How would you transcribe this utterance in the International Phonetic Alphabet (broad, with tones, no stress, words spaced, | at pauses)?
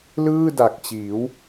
lɯː˥˩da˨˩k̚t͡ɕiː˩˦w